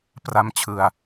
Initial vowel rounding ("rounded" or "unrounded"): unrounded